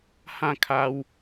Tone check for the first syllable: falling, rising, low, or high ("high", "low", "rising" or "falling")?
falling